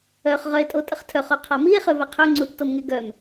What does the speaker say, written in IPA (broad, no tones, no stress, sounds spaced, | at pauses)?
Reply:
œ χ ʁ œ e̯ tʼ o tʼ ə χ tʰ œ χ o qʰ a m i e̯ χ ø v ɛ qʰ ø ŋ͡ǀ u t͡s t o m ŋ e ɡ œ m